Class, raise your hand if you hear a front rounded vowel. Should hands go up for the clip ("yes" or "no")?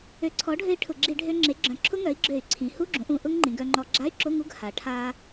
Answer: yes